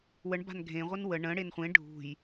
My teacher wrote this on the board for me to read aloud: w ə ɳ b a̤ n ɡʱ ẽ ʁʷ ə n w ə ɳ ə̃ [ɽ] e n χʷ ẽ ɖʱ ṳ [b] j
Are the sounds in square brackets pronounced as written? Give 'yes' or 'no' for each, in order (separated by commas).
yes, no